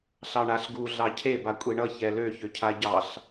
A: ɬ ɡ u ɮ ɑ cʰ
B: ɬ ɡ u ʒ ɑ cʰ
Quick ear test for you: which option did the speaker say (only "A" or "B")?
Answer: A